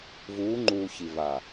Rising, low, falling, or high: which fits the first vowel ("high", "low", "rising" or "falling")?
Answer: rising